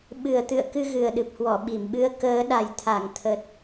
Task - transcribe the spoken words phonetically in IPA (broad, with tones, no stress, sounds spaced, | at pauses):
ɓ ɨ˨˩ ə̯ t̪ ɨ̰˧˨ ə̯ k ɨ˧ ɣ ɨ˨˩ ə̯ ɗ ɨ˨˩ p̚ h w ɔ˧˩ ɓ i˧˩ m ɓ ɨ˧ ə̯ k əː˨˦ ɗ a˨˩ j t̪ʰ a˧˩ ŋ t̪ʰ ə˨˩ t̚